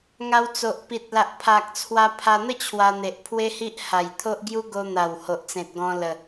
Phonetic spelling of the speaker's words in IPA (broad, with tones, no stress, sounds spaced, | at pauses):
ŋ a˧ w t͡s o˨ ʔ p i˨ t̚ l a˨ ʔ pʰ a˨ k̚ t͡sʰ w a˧ pʰ a˧ n̪ ə˥˧ t͡ɕʰ w a˧ n̪ e˨ ʔ pʰ w e˦ h i˦ ʔ h a˨˩ j t̪ʰ o˦ ʔ ɡ j u˦ ɡ o˧ n̪ a˨˩ w h o˨ ʔ t͡s ẽ˨ t̚ ɡ ɔ̃˧ l ə˨˩